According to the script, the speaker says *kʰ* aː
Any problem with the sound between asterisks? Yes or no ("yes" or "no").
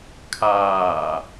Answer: no